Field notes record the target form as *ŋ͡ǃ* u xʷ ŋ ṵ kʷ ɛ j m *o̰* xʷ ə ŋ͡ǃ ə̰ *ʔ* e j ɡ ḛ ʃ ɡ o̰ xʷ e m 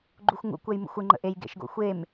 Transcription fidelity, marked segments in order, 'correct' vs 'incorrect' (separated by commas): incorrect, incorrect, correct